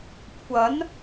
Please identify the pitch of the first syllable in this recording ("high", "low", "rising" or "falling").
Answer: rising